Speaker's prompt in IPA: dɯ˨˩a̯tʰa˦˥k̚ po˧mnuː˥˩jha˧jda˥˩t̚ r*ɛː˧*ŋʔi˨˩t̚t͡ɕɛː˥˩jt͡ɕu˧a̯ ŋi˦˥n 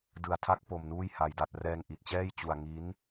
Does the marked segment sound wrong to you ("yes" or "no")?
no